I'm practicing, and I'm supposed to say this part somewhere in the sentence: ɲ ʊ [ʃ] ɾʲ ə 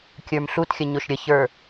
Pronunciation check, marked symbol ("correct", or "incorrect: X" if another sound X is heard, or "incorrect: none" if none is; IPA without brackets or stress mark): correct